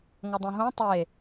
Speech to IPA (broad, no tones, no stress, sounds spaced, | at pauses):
ŋ ʌ dˤ ẽ ɦ õ tˤ e